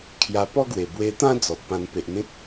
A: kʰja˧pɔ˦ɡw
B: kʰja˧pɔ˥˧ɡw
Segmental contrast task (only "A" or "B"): A